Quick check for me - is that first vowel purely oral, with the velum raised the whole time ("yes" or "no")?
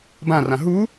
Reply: no